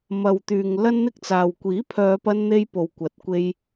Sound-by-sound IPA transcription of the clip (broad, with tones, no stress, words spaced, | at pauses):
mɐ˨wt̪yː˨ŋ lɐ˥nn̪ɪ˥k̚t͡saː˨w kʷiː˨˥pʰœː˨˧pɐ˧nn̪e˧j po˨w kʷɐ˨˥t̚kʷe˧j